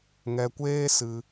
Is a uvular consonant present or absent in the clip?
absent